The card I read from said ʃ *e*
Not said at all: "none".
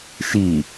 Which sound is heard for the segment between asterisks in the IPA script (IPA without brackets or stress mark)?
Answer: i